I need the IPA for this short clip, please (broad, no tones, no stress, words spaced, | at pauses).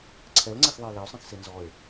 ǀʰɛlŋ͡ǀexðˤɛj lɛo̯sˤɛ̃xse nzɔe̯